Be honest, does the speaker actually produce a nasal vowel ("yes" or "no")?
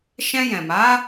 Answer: yes